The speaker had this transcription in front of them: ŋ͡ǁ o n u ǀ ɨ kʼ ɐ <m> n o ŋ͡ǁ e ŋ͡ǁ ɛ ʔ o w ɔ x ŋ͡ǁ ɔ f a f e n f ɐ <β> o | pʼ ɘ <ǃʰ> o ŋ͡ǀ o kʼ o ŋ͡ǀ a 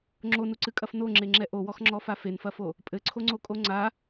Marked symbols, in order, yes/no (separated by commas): no, no, no